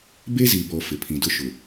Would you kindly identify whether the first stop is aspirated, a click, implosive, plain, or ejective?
plain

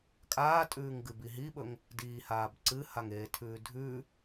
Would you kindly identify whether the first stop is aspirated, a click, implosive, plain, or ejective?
ejective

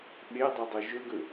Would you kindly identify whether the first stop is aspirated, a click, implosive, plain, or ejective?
implosive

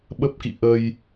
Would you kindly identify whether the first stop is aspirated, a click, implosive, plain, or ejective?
implosive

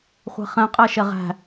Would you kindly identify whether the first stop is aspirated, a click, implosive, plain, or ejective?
ejective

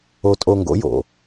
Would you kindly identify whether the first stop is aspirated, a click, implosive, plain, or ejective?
ejective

